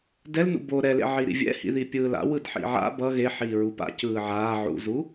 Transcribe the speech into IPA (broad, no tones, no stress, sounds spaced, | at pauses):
d ɛ l n ṵ b o ɾ ɛ l ḛ ʕ i ɾ ḭ vʲ ɛ̰ h ḭ ð i pʲ ɯː l a̰ w ɯ d ħ ḭ ʕ a̰ b ʌ ɣ e ħ iː ɹ u p a̰ c ɯː ʕ aː ʕ ṵ z u